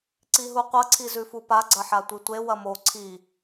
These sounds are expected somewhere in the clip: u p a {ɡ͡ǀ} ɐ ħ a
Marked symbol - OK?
yes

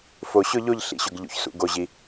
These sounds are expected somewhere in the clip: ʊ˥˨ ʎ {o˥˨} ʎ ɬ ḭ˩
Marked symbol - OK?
yes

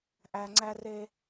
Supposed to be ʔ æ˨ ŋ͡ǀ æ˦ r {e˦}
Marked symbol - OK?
yes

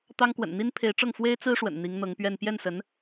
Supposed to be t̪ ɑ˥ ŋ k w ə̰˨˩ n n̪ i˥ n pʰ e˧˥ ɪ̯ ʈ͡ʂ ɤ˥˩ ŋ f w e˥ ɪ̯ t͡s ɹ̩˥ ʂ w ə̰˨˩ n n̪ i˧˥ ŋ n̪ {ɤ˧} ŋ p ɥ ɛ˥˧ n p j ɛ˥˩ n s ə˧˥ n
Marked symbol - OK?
no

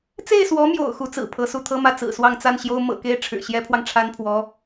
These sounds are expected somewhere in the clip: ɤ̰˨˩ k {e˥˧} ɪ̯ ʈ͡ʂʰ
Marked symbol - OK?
no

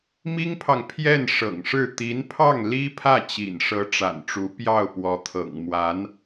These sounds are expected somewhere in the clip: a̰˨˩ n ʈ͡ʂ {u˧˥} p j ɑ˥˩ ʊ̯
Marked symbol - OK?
yes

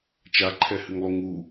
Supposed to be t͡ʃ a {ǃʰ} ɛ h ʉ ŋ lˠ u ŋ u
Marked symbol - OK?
yes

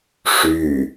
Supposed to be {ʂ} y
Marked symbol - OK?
yes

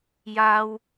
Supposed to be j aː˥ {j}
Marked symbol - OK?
no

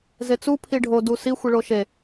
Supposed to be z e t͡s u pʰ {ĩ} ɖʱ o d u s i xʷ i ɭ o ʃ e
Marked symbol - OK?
no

